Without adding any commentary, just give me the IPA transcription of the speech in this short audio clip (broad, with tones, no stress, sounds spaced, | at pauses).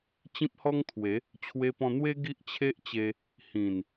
t͡ɕ ĩ˦ p̚ h ɔ˦ ŋ t̪ʰ w e˨˦ | t͡ɕʰ w e˧ p ɔ̃˧ n̪ w e˦ ɡ i˦ ʔ t͡ɕʰ e˦ ʔ t͡ɕ e˧ | h ĩ˨˩ n